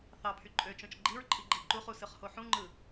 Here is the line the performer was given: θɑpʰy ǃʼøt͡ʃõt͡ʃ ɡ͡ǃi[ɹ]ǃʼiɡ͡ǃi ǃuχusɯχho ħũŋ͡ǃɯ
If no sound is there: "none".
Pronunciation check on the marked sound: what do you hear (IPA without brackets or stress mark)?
ɹ